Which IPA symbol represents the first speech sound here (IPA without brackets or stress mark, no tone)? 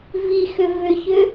v